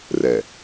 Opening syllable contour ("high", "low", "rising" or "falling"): low